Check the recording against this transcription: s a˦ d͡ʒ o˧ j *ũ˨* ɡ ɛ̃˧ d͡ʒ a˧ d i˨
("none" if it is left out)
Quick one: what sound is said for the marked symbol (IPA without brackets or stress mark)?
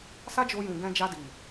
ũ˨